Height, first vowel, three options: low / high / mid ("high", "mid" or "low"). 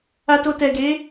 low